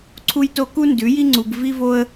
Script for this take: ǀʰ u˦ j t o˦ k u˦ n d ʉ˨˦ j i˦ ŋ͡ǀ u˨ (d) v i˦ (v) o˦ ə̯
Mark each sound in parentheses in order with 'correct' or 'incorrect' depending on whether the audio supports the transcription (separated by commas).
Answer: incorrect, correct